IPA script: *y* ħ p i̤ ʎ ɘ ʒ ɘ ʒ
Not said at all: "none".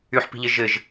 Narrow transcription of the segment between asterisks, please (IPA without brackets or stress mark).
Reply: y